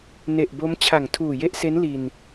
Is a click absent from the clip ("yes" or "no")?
yes